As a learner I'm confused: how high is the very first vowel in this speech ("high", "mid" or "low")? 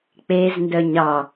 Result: mid